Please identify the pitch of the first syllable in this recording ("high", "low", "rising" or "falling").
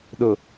low